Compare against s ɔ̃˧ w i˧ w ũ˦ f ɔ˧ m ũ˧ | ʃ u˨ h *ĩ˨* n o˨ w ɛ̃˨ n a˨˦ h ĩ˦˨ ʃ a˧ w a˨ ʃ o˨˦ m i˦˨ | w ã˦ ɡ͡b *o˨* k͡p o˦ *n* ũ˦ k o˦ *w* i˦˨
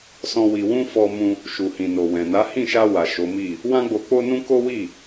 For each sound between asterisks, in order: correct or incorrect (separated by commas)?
correct, incorrect, correct, correct